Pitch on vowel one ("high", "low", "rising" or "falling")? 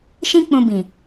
high